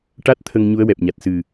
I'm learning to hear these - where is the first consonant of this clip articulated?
retroflex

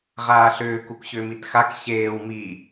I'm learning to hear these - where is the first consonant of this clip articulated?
uvula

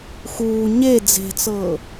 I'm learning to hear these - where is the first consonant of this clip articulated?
velum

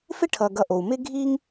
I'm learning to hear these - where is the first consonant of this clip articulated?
lips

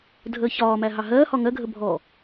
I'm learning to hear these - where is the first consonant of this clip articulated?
tongue tip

